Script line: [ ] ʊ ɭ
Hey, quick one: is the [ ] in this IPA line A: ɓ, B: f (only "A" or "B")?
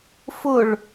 B